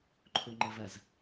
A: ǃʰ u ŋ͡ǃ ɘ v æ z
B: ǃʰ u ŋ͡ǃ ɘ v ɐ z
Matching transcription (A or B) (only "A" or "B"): B